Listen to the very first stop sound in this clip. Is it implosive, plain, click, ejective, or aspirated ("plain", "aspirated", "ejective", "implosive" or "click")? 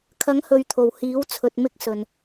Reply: aspirated